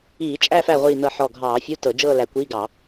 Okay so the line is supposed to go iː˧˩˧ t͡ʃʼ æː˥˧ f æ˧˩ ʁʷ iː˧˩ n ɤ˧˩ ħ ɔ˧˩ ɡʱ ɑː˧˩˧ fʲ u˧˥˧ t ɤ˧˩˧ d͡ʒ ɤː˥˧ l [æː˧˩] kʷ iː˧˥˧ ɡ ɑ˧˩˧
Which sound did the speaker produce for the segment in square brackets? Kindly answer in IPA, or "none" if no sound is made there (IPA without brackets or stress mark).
æ˧˩